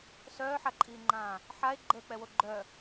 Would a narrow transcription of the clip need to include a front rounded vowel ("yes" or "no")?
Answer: yes